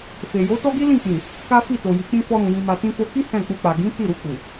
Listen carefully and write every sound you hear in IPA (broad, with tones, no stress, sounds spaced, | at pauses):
f e˨ j o˨˦ t ɔ˦ ɡ i˦ l ĩ˦˨ k͡p ĩ˨ | k a˦ f i˦˨ t o˨ j i˨˦ k͡p ĩ˦ f ɔ˧ ɾ ũ˨ j ĩ˧ m a˧ t ĩ˧ f o˧ k i˦ h ɛ̃˦˨ k͡p u˧ k͡p a˨ ɡ ĩ˨˦ t i˦˨ ɾ u˧ k͡p u˨